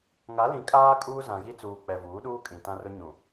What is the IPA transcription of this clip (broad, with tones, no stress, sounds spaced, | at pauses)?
ŋ a˨˦ l ĩ˨ kʼ aː˦ kʼ uː˦ z ã˨ ɣ i˦ t͡s uː˨ k͡p ɛ˨ v uː˨˦ ɗ uː˦ kʼ ĩ˨ t ã˦ r ʊ˦ ɲ ũ˨